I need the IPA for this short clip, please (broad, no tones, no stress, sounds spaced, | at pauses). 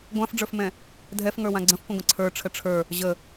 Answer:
ɡʷ ã f ɖ͡ʐ ə˞ f m ɛ̃ | dʱ ɛ f ŋ ə˞ w ã ɡ͡ǀ ə̃ f kʷ ə̃ ɡʷ ə̃ ǀʰ ə˞ ʈ͡ʂʰ ə ʈ͡ʂʰ ə˞ | ʑ ə